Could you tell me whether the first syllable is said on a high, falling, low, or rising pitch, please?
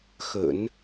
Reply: low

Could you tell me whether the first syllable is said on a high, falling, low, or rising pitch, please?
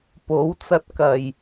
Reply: rising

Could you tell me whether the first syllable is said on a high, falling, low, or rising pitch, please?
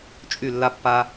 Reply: falling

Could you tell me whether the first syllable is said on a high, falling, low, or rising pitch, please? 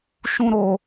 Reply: high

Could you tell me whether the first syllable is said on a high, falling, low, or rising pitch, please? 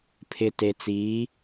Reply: low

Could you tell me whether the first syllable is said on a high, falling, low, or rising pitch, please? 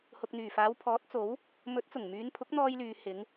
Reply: low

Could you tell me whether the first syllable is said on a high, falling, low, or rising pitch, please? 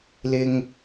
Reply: high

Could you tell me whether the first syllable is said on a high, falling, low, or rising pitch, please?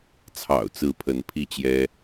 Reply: low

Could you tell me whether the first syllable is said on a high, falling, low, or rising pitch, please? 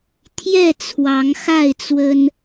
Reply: falling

